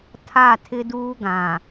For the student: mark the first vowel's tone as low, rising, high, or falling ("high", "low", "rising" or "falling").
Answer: falling